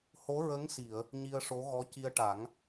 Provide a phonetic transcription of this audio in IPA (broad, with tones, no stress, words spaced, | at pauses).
ho˧˥ɹə˧˥ŋsi˨˩˨ə̯ | ɲi˧ə̯ʂo˧˥ɣɔ˧˥ ci˧ə̯ʈa˨˩˦ŋ